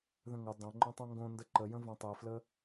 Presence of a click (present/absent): present